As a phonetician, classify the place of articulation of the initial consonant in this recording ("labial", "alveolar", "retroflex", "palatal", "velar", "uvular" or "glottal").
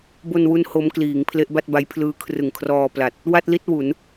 labial